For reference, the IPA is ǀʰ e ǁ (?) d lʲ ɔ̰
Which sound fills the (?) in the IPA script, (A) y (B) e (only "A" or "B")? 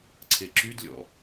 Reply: A